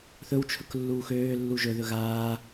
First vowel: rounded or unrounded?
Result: rounded